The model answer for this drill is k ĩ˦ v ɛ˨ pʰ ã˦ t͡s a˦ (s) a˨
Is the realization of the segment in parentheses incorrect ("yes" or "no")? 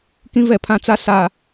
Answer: no